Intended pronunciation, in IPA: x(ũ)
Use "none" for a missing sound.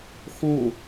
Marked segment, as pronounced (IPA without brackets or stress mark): õ